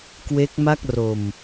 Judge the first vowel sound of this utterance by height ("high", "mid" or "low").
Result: mid